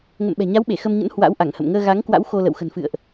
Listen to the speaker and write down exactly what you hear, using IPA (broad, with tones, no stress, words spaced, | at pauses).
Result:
ŋə̰˧˨m ɓɛ̤˨˩ɲa˨˦wɓe˧˩ xə˧mɲə̰˧˥n hwa̰˧˥wʔa˧˩ŋhə̰˧˨m ŋəː˧ɣa˨˦ŋkwa̰˧˥w xo˧lə̰˧˨w xə̤˨˩nfɨ̰˧˨ə̯ʔ